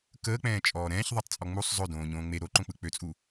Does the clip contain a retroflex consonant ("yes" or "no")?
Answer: no